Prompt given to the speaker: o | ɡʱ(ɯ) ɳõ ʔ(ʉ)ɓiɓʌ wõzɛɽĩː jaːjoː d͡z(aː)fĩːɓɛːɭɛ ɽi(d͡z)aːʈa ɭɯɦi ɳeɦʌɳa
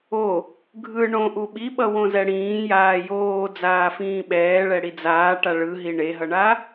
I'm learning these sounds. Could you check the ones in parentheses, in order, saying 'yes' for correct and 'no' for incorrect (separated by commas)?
yes, no, yes, yes